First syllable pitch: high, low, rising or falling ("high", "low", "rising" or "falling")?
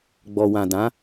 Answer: low